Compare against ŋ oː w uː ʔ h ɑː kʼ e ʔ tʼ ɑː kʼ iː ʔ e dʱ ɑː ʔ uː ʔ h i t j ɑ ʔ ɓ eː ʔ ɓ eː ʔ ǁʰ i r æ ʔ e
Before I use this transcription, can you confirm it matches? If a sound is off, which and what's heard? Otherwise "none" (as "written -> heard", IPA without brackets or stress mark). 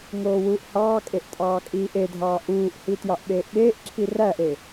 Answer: none